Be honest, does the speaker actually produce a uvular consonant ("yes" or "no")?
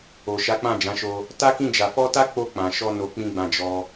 no